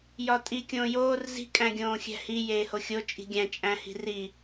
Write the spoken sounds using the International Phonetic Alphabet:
j ɒ tʼ i kʲ õː j oː r z i̤ kʼ æ̃ ɡʲ õː xʲ æ̤ h i j eː h o xʲ o t͡ʃʼ i̤ ɡʲ æ̃ t͡ʃʼ æ̃ h i̤ r i

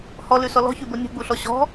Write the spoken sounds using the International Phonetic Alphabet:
h ɔ l ʉ s ɔ l ɔ̤ ç ʉ b o nʲ ṳ ɡ͡b u ɬ ɔ ɕ ɔ̤

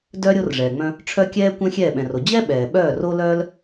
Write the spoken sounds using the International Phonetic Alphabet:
d œ˦ ɾʲ o˦ r ʐ ɛː˨ ŋ͡m œ̃˦ | ʈ͡ʂʰ œ˦ kʲ ɛː˦ kʷ ɛ̃˦ xʲ ɛː˦˨ ɓ ɛ̃˨ r o˨ d͡ʑ ɛ˦ ɓ ɛː˨ ɓ œː˦˨ r o˦ l œː˦ l

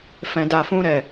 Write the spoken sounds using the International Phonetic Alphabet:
f ɛ̃˦ d a˧ f ũ˦ ɾ ɛ˦˨

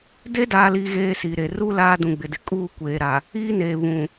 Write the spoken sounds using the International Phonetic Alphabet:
d e˦ d aː˨ l i˨ ɣ eː˦ s i˨ ɾ e˨ r u˦ l aː˦ d ũ˨ ɡ͡b ɪ˨ d ɪ˨ kʼ uː˦ kʷ eː˨ ɾ a˨ | iː˦ n eː˨ β ũ˨

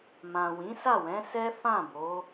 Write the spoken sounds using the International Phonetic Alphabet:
m ã˨ w ĩ˨˦ s a˦˨ w ɛ̃˨˦ s ɛ˦ f ã˦˨ b o˨˦

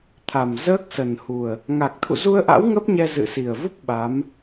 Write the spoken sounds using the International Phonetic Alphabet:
t̪ʰ a˨˩ m z əː˦˥ k̚ s ə˨˩ n h u˨˩ ə̯ | ŋ a˨˩ k̚ t̪ʰ ṵ˧˨ z u˧ ə̯ ʔ a̰˧˥ w ŋ ə˦˥ p̚ ɲ ɛ˧ z ɨ̰˧˨ s i˨˩ ə̯ v u˦˥ p̚ ɓ a˨˦ m

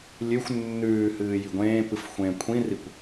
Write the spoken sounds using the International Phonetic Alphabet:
lʲ ʉ xʷ nː ʉː h ɨː j i ɡʷ ẽː p ɨ f xʷ ẽ kʷʰ ĩ r i kʷ

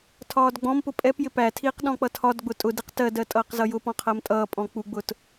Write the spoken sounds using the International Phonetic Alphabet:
tʰ ɒː d ɡ͡b ɔ̃ m p ʊ pʼ ɛ p j ɪ p æ tʰ iː q ɗ ɔ̃ k͡p ʌ tʰ ɒ d ɡ͡b ʊ tʼ ʊ d i q t ɜ d ɜ tʼ ʌː q z ʌ j ʊ p ɔ̃ qʰ ɜ m tʼ ʌː pʼ ɔ̃ k͡p u ɡ͡b ʊ t

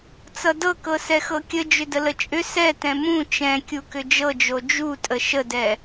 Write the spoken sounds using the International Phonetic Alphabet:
t͡s ʌ d ɤ k ɤ s ɛ x ɤ kʲ ə d͡ʒ ʏ d ə l ə t͡ʃʼ ʏ s ɛ t ɛ̃ m ũ t͡ʃ ɛ̃ kʲ u k ʏ d͡ʒ ɤ d͡ʒ o d͡ʒ u tʼ ə ʃ ə d ɛ

